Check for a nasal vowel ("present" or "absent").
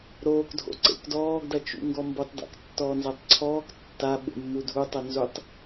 absent